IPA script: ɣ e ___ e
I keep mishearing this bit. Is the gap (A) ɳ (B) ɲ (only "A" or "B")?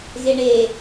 A